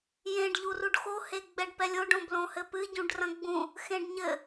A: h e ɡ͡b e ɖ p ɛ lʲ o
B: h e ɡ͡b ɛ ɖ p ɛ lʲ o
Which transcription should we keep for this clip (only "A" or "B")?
B